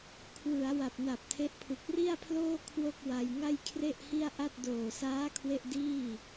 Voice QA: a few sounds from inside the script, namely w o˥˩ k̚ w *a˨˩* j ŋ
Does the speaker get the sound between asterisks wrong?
yes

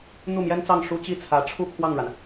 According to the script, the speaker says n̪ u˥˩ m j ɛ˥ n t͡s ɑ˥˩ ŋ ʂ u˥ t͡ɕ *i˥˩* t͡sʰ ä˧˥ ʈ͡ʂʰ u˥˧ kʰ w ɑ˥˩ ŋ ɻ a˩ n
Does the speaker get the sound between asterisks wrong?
no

